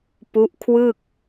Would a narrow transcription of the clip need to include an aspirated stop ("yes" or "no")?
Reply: yes